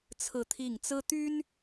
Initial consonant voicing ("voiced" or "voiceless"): voiceless